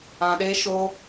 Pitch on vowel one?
low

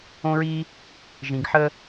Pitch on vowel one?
high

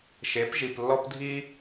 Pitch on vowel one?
rising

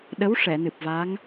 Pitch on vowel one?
rising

